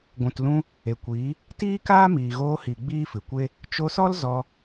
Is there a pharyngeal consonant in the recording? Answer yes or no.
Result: no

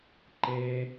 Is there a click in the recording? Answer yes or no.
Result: yes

